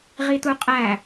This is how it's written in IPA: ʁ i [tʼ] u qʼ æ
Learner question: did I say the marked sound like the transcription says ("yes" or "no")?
no